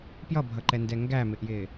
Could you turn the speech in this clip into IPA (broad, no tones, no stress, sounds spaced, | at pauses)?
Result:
p j ʌ bʱ ʌ ǃ ɛ n d ɛ ŋ ɡ æ m ɪ ʔ j ɪː